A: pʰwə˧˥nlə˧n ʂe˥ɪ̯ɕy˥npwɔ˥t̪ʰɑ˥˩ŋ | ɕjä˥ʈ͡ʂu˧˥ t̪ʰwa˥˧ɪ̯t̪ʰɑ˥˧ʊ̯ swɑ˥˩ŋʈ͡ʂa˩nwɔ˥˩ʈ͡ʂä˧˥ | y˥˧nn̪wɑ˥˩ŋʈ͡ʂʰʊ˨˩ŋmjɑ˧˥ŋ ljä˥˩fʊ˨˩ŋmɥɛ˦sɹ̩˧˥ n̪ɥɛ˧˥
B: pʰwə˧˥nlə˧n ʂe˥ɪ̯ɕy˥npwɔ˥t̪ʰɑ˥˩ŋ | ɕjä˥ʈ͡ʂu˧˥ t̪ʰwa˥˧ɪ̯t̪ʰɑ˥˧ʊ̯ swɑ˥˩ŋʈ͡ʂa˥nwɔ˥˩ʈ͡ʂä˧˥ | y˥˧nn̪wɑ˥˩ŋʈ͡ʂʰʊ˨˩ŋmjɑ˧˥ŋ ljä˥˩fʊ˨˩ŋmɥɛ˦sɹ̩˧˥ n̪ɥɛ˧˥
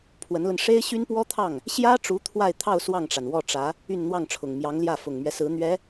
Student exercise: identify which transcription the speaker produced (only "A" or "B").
A